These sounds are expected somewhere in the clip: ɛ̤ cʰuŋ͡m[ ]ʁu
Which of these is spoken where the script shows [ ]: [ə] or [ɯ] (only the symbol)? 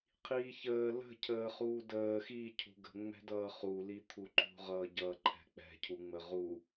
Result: ə